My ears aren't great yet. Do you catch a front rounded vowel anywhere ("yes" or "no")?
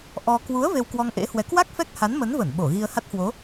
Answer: no